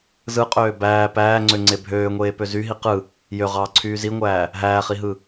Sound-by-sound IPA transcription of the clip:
z ɯ qʼ øː b æː p æː ŋ͡ǀ ø ŋ͡ǀ e bʱ øː ŋʷ eː p ø z y ɦ i q ɯ | j ø ʁ ɑː ǀʰ yː z i ŋʷ æː | ɦ æː χ i ɦ ɯ

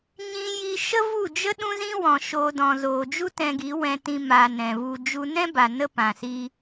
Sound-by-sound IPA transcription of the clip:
ɲ ĩ˧ j i˧ ʃ ə˦ v u˦˨ d͡ʒ ə˦ ɗ ũ˦ z ĩ˦ w ɔ̃˨ ʃ oː˧ d ɔ̃˨ z oː˨ d͡ʒ u˦ t ɛ̃˧ ɡ i˨˦ w ɛ̃˧ t ĩ˧ m a˨ n ɛ̃˨ v u˧ d͡ʒ u˦ n ɛ̃˦ b a˨ n ə˦ p ã˨ s i˧

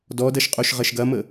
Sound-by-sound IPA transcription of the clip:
d ɔ d ɐ ʃ qʼ o ʃ ʁ ɐ ʃ ɡ ɐ m ə

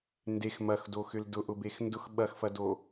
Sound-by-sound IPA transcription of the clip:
n d e x m ɐ x d o x ʏ l d ʊ ʔ ʊ b e x n d ʊ x ɓ ɐ x f ɐ d o

